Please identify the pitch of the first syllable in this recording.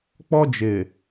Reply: high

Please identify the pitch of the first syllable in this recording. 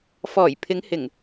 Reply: low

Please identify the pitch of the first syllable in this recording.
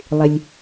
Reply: low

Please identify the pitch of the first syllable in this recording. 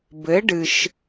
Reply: rising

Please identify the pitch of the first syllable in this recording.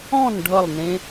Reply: falling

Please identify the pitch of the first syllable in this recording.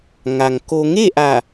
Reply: low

